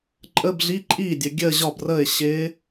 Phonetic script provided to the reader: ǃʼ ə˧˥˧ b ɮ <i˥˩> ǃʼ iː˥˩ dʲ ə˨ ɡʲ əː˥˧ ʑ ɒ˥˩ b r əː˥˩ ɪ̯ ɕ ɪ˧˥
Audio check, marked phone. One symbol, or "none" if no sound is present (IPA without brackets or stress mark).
i˧˥˧